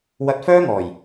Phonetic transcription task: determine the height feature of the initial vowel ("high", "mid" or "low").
low